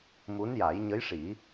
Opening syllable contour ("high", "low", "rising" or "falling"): rising